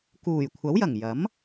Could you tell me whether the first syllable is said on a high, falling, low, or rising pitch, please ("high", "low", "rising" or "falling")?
low